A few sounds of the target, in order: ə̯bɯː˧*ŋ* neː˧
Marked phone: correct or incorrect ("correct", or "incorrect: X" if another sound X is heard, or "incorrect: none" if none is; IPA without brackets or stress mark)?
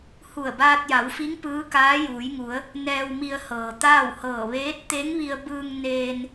correct